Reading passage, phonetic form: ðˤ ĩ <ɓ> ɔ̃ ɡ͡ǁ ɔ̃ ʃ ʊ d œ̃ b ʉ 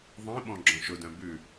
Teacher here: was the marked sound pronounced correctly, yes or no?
yes